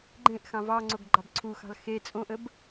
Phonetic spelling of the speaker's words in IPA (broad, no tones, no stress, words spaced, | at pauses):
ɡ͡ǃẽʔxɑ̃ vɑŋ͡ǀoɡ ɡ͡ǃɑbǀʰuxɑ̤l xe t͡sʼõʔəb